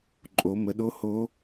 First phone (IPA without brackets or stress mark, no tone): ǃʼ